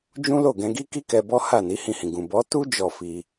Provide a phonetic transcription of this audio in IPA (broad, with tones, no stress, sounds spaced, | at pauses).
d͡ʒ ũ˦ l o˦˨ ɡ ɛ̃˧ ɡ i˦ k i˦ k ɛ˧ b ɔ˦ h a˦˨ n i˨˦ h ĩ˧ h ĩ˨ ɡ ũ˨ b ɔ˨˦ t u˦ d͡ʒ ɔ˦˨ f i˧